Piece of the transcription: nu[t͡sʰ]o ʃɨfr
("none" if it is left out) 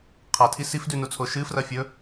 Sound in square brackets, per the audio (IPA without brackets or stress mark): t͡sʰ